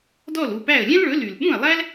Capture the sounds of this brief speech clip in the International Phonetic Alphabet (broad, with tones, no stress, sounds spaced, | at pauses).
d ɔ˥˩ l u˥˩ p æ˥˩ ə̯ lʲ ɛ̃˥ l ɭ ɵ˩˥ l y˩ l ɓ ũ˥˩ ə̯ lˠ æ˥ l